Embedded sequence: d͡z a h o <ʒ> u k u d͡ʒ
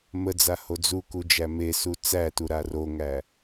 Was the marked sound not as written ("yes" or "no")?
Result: yes